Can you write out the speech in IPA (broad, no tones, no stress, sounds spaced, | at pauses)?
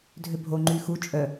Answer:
dʱ ø bʱ o ŋ͡ǃ y x u t͡ʃʼ œ